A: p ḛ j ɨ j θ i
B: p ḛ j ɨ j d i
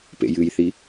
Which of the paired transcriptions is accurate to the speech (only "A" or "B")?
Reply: A